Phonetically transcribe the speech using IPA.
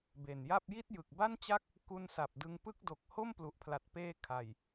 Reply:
be˨˩nja˥˩p̚ ji˥˩t̚jɯ˨˩k̚ba˥˩n t͡ɕa˦˥k̚ | ku˧nsa˨˩p̚ dɯ˧ŋpɯ˥˩k̚ do˨˩k̚ho˥˩m plu˨˩ʔpʰla˨˩t̚peː˧ kʰa˨˩j

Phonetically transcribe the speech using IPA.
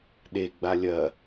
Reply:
ɗeɡ͡ba lʲɐ

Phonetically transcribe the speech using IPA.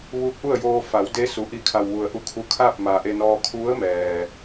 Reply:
ʋuː˧˥k̚ʔu˥˨ə̯joː˧ fa˩˧wde˧˥su˩ ʔi˧˩kʰa˩w ʋu˩ə̯ʔu˧ kʰu˧kʰa˥˨p̚ ma˩ʔe˧nɔː˧ kʰu˧˥ə̯mɛː˩

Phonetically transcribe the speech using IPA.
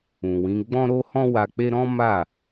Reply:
ũ˨wĩ˨˦ɡ͡bɔ̃˦ ɾo˦hɔ̃˦ wa˧k͡pe˦ ɾɔ̃˦ma˦˨

